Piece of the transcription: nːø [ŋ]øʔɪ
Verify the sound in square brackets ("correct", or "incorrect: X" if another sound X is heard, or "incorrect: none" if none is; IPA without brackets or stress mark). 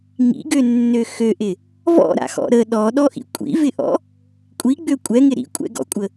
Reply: incorrect: x